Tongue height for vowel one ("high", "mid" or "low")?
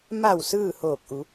low